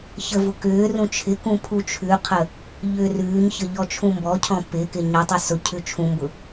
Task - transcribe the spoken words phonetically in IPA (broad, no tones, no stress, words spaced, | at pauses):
çəvʊ kʏː rũt͡ʃʰɪkũ pʰut͡ʃʰʉqʰə | ʎʏːrʉːɲçə ʎɔt͡ʃʰũmbɔcʰɔ̃ pɪkɪ ɲɔtˤʉ sʊ cʰʉt͡ʃʰũmbʊ